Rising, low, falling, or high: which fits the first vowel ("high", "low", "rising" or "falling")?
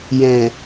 low